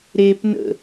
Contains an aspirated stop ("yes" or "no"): no